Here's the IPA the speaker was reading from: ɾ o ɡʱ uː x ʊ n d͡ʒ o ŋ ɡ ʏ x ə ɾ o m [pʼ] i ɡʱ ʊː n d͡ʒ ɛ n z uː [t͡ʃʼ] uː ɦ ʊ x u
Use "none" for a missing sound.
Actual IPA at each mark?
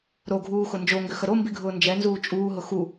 b, t͡ʃʼ

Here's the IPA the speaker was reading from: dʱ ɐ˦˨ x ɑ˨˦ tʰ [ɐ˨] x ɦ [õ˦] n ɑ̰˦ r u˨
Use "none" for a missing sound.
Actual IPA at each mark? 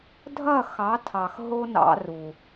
ɑ˨, o˦

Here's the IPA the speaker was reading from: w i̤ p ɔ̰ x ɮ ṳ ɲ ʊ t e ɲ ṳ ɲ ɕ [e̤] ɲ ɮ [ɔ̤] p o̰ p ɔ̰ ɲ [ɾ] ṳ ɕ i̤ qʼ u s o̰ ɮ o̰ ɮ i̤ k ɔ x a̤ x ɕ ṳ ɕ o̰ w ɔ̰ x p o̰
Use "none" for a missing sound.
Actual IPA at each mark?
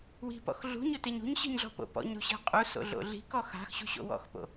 i̤, ɔ̤, ɾ

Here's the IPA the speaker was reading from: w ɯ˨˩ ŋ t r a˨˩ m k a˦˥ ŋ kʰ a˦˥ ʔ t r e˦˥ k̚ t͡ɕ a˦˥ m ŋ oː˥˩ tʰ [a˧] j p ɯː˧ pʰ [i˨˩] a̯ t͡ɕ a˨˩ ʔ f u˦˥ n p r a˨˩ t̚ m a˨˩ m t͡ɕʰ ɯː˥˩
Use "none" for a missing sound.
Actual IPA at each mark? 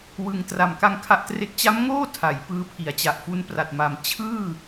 a˩˦, i˩˦

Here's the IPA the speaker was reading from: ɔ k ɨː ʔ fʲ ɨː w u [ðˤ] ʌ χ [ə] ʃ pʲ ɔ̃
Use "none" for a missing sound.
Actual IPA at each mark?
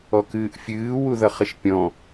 ð, ə

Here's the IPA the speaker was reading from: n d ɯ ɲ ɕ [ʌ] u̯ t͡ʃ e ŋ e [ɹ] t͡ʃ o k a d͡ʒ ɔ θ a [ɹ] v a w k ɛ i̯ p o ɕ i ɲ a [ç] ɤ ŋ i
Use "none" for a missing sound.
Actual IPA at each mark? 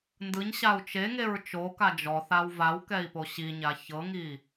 a, ɹ, w, ç

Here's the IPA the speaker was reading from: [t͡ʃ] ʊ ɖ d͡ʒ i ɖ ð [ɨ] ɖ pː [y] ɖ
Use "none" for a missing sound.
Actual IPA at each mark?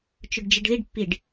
t͡ʃ, i, i

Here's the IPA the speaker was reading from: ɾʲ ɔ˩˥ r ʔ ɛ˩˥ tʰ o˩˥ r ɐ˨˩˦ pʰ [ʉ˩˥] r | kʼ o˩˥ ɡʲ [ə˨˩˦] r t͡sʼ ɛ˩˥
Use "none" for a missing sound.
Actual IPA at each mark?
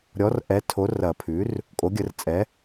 ʉ˩˥, ə˨˩˦

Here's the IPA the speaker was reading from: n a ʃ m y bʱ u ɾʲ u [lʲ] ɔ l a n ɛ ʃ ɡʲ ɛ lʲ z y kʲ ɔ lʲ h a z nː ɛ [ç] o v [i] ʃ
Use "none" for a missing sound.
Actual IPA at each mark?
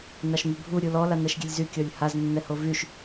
l, h, y

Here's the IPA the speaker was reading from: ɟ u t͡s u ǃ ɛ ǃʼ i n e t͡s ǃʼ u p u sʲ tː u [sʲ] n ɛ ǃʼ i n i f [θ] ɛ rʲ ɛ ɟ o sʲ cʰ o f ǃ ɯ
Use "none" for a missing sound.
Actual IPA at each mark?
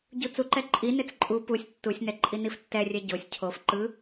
sʲ, tː

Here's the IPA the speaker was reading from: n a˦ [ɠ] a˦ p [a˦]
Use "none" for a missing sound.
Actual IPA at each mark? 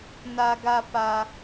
ɡ, a˦

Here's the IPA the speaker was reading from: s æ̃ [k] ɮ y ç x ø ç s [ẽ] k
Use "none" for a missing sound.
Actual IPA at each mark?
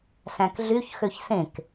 k, ẽ

